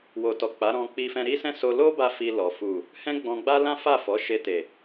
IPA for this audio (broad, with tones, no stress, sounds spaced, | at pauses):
w o˨ t ɔ˨ k͡p a˨˦ ɾ ɔ̃˧ k͡p i˧ f ɛ̃˧ ɾ i˦ s ɛ̃˦ s o˧ l o˦ b a˧ f i˧ l ɔ˨ f u˨ | h ɛ̃˦ ɡ͡b ɔ̃˧ ɡ͡b a˦ l ã˦ f a˦˨ f ɔ˨˦ ʃ e˧ t e˨